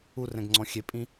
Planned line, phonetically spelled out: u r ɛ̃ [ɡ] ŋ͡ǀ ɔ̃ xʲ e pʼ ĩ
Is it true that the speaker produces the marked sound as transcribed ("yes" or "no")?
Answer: yes